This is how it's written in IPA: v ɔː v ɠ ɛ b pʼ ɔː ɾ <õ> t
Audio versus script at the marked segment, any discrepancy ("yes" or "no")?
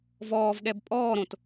no